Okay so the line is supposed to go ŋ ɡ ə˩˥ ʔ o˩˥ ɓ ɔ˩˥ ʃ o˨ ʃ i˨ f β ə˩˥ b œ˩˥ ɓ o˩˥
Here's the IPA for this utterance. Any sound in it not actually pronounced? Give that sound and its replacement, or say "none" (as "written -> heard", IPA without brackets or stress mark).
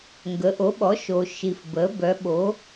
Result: β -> b